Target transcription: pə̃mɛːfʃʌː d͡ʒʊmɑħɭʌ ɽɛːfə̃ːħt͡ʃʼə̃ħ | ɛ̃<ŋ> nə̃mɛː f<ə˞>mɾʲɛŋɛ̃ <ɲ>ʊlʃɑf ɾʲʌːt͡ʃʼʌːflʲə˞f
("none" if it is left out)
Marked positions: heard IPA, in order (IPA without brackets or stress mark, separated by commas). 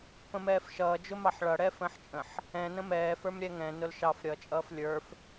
none, ə˞, n